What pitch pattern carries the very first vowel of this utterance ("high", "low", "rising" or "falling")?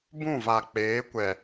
falling